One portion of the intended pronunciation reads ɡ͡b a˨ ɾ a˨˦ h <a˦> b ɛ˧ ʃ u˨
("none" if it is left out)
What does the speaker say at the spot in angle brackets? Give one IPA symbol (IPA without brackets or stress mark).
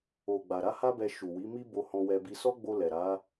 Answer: a˦